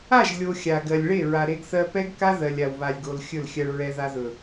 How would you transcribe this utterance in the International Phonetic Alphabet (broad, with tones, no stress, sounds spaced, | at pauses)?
a˦˨ ʒ lʲ o˨ xʲ a˨ ɡ ɜ˨ lʲ ɭ e˦˨ ɹ a˨ ɾ e˧ ɡ θ ɜ˧ p ɛ˦ ɡ k a˦ ð ɜ˨ lʲ a˨ w β a˨ lʲ ɡ o˨ l xʲ ɵ˦˨ l xʲ ɜ˧ ɭ ɹ ɛ˧ ð a˧ ð ɵ˨